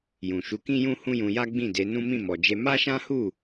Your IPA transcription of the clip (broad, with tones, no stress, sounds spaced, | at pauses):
j ũ˨ ʃ u˨˦ k ĩ˦ j ũ˦ h ũ˦ j ũ˧ j a˦ ɡ͡b ĩ˦˨ d e˨˦ n ũ˦ m ĩ˦˨ m ɔ˨ d͡ʒ e˧ m a˦ ʃ ã˦ h u˦˨